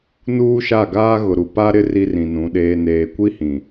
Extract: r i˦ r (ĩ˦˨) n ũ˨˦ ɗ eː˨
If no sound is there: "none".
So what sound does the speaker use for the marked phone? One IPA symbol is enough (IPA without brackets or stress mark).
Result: ĩ˨